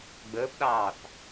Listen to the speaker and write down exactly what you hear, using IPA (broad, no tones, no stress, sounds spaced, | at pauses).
ɡ͡b əː p ɗ ɑː θ